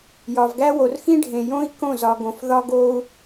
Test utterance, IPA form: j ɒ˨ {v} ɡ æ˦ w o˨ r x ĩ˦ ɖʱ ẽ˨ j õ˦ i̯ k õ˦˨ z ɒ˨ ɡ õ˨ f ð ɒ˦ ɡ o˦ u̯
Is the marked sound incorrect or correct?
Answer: correct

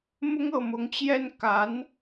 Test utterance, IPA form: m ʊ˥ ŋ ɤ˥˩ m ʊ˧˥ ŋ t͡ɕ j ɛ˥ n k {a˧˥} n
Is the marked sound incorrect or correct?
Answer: correct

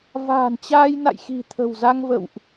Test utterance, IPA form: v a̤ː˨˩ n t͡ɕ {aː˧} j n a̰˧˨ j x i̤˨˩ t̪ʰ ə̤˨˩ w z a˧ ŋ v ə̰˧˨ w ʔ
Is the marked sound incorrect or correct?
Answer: correct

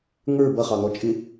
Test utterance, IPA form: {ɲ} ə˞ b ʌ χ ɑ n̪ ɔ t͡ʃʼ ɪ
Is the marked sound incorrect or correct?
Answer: incorrect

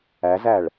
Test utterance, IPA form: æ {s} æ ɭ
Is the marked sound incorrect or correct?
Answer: incorrect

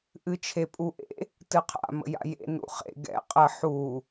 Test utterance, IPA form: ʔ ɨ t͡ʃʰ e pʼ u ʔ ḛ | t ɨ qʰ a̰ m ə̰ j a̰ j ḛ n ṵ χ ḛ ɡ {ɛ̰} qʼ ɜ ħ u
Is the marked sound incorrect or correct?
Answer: correct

